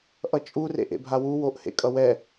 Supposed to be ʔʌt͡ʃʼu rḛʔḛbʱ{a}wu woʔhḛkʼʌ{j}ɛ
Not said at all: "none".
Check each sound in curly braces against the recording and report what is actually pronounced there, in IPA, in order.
a, w

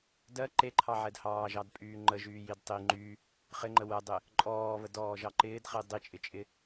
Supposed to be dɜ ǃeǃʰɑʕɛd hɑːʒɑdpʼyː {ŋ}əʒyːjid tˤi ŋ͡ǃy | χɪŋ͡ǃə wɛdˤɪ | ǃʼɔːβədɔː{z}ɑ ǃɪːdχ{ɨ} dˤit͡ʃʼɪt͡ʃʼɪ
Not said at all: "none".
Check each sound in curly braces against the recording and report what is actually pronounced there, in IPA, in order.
ŋ͡ǃ, ʒ, i

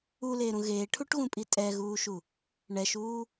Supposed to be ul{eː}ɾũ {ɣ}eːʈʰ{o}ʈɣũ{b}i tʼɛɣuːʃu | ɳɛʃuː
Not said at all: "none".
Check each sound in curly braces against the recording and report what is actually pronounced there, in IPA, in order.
eː, ɣ, u, pʼ

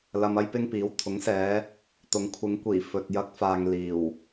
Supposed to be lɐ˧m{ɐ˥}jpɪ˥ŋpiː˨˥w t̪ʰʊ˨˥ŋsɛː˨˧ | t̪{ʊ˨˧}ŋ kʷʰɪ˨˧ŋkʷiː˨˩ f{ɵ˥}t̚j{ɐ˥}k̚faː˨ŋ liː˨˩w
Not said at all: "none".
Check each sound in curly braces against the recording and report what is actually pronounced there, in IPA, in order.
ɐ˥, ʊ˨˧, ɵ˨, ɐ˧

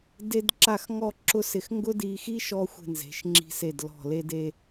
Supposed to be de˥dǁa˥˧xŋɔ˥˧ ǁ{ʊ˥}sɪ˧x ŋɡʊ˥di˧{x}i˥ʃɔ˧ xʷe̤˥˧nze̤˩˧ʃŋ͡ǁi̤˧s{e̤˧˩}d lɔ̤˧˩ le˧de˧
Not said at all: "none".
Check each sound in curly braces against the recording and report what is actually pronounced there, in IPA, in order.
ʊ˥, x, e˧˩

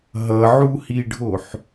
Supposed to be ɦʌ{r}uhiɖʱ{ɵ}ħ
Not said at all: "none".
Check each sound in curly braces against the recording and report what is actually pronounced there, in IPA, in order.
ʕ, o

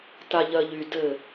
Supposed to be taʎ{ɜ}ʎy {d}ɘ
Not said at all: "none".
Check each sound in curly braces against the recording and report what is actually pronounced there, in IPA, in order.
ɜ, d

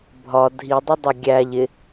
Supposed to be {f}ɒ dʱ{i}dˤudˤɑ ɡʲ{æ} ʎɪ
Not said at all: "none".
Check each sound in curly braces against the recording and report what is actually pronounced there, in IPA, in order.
bʱ, i, æ

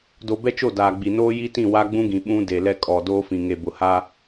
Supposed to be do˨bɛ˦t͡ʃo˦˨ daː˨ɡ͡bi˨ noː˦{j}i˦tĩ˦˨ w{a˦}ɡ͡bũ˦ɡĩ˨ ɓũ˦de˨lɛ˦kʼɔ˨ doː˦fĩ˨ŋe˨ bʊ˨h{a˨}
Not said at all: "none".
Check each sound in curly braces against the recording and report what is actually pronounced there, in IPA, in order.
j, a˦, a˦

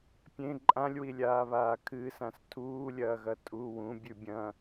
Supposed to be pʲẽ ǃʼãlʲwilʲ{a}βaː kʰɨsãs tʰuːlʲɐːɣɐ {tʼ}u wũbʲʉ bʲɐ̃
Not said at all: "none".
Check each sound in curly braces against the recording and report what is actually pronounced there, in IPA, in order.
aː, tʼ

